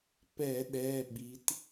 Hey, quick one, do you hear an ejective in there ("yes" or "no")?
no